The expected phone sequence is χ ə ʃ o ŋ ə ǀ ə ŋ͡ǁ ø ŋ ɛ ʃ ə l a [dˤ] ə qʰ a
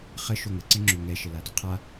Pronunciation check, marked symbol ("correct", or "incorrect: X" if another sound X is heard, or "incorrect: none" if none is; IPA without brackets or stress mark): incorrect: d